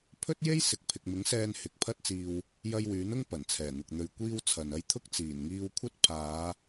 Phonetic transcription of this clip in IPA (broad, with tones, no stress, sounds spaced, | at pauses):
pʰ ɵ˥ t̚ j e˥ j s ɪ˨ k̚ pʰ ɪ˨ k̚ m ɪ˨˥ ŋ s ɛː˧ n h ɪ˨˥ k̚ pʰ ɐ˥ t̚ t͡s iː˧ w | j ɐ˧ j w yː˨˥ n ʊ˥ ŋ p ɐ˨˩ n t͡sʰ ɛː˨˩ n̪ ʊ˨ k̚ n̪ ɵ˨ ɥ kʷ iː˥ w t͡sʰ ɐ˨ n ɐ˥ j t̪ʰ ʊ˥ k̚ t͡s iː˨˩ n ŋ iː˧ w kʷʰ ɐ˥ t̚ pʰ aː˨˧